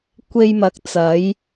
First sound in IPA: kʷ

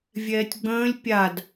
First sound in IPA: vʲ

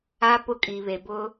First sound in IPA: a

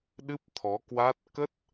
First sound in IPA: ɗ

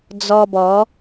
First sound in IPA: d͡z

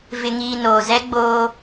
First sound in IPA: v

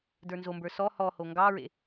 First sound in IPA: d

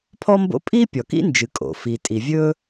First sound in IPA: pʰ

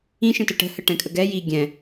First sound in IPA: ĩ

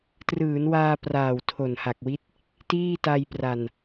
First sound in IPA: t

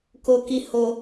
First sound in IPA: k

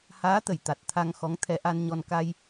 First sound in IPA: h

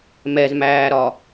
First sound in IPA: m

